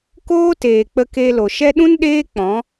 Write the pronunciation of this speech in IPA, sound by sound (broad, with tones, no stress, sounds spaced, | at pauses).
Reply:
k oː˦ t eː˨ k͡p ə˧ k e˧ l o˨ ʃ ɛ˦ ɗ ũ˦ n ɗ eː˦ k͡p ɔ̃˨˦